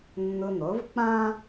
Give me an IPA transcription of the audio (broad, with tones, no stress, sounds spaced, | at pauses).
nː ʊ˧ n̪ o˩˥ v k͡p ã˥